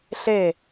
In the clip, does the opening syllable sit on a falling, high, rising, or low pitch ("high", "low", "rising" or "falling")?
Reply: falling